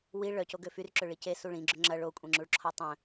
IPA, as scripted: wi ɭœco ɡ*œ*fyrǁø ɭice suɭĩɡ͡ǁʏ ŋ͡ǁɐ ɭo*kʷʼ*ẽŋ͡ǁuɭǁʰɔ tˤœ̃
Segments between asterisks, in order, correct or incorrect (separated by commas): incorrect, correct